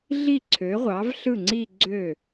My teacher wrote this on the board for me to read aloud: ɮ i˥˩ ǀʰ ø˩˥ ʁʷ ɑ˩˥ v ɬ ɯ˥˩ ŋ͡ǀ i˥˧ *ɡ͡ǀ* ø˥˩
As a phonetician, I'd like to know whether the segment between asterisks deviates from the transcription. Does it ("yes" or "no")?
no